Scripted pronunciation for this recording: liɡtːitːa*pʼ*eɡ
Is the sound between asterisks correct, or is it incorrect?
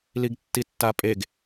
correct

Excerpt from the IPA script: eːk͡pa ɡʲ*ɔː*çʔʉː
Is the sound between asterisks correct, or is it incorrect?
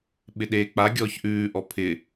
correct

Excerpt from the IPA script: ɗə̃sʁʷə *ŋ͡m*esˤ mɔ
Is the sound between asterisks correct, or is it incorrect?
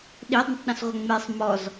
correct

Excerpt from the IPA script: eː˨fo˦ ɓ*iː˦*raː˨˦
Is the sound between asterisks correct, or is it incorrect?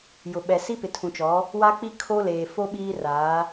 correct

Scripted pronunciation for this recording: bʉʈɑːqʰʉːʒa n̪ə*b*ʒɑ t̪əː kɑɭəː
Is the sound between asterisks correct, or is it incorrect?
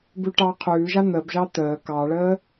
correct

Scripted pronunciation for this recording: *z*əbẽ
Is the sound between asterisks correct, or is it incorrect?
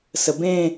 incorrect: s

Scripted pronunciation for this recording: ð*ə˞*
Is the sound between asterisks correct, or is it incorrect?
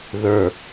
correct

